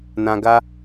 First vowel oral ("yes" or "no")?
no